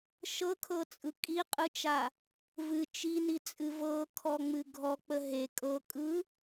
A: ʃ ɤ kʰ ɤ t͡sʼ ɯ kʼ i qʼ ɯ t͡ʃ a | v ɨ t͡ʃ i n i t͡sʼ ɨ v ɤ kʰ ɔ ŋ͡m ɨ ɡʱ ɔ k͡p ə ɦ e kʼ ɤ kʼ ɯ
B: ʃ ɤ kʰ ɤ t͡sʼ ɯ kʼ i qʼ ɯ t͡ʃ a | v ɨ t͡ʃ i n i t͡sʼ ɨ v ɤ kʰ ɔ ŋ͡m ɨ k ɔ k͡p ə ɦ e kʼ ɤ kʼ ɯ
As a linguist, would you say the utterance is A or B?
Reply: A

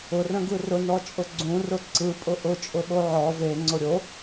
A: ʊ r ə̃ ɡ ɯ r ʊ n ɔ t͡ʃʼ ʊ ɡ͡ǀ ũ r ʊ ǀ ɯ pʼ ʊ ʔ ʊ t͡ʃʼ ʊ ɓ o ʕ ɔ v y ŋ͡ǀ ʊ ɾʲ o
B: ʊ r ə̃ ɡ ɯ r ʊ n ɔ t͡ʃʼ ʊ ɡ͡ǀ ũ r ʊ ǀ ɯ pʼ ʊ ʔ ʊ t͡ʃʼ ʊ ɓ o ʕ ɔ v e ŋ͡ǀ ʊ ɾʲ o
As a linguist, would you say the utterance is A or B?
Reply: B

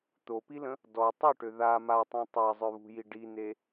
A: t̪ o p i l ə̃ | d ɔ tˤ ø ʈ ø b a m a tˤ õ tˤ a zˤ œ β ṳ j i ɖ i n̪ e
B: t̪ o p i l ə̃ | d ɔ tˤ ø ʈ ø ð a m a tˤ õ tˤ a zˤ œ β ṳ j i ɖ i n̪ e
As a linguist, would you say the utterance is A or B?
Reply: B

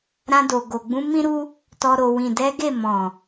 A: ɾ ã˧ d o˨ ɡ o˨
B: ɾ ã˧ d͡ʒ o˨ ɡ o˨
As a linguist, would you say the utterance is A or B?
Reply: A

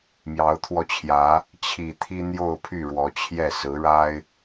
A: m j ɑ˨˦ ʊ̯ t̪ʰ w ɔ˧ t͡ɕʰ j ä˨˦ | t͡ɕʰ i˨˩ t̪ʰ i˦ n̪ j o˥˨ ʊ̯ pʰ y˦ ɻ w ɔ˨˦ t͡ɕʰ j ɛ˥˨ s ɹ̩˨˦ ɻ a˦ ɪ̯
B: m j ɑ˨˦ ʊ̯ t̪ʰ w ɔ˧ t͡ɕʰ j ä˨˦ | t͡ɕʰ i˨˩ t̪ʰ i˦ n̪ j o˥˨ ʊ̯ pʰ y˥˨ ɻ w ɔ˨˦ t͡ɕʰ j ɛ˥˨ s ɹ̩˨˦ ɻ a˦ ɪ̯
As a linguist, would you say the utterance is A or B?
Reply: B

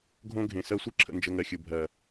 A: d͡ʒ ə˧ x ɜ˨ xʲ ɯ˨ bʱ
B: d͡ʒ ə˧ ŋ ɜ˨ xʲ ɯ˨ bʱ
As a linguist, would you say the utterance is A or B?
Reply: B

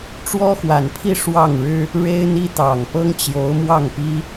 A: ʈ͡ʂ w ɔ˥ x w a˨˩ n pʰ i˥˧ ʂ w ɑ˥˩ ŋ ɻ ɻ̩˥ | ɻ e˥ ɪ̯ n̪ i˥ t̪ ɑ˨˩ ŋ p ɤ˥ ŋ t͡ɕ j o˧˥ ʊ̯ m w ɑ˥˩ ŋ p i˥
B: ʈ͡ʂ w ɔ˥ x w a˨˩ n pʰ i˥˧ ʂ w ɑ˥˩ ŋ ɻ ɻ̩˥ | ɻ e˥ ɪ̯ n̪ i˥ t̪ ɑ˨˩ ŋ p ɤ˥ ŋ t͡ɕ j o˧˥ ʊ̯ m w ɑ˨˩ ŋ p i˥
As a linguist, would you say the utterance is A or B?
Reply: A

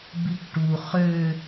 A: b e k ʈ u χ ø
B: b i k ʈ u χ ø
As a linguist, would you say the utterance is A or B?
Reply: B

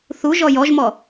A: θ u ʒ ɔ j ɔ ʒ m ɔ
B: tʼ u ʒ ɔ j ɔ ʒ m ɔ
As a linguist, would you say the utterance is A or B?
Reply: A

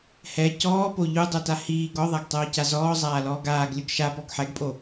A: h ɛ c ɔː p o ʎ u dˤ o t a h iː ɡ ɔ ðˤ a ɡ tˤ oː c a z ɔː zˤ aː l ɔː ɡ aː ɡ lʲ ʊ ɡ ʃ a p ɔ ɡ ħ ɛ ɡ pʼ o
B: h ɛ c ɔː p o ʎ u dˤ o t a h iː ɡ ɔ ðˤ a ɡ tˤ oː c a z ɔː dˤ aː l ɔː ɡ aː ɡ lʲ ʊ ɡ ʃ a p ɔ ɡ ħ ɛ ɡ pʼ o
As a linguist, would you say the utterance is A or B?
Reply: A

